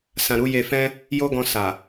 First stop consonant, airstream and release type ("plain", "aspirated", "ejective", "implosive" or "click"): plain